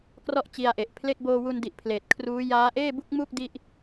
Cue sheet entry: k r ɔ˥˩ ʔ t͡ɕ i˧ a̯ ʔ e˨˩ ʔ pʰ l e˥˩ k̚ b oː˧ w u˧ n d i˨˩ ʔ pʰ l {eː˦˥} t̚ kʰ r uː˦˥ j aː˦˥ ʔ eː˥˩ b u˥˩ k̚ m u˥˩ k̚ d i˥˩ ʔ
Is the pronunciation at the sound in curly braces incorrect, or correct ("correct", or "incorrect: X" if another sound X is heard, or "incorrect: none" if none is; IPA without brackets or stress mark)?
incorrect: eː˨˩